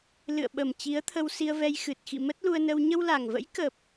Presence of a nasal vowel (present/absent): absent